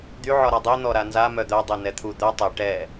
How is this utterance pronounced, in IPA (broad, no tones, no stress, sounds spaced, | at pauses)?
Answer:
d̪ y ʕ ɔ ɾ a dˤ i n̪ ɔ ɾ a n z a m œ d̪ œ dˤ e n ɛ t̪ʰ u d̪ œ tˤ e ʈ ɛ